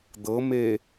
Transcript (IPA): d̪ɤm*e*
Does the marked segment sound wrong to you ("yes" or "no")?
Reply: no